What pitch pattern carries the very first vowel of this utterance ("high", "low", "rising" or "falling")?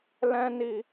high